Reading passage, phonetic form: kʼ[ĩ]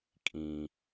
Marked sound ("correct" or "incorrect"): correct